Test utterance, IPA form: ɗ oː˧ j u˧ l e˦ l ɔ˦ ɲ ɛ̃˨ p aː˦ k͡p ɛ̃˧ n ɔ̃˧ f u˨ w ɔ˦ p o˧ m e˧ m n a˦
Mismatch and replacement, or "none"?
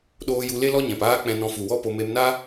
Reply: none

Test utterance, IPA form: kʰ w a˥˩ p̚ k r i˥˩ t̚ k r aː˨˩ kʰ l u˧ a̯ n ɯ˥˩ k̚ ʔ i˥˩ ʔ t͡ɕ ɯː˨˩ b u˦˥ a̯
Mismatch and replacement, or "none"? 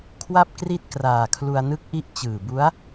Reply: none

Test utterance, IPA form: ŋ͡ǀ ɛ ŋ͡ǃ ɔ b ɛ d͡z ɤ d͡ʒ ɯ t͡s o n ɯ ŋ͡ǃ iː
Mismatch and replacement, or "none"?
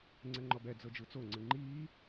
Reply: n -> ŋ͡ǀ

